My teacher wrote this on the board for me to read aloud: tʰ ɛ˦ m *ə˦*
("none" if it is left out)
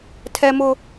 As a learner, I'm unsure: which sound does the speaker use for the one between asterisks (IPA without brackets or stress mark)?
ʊ˦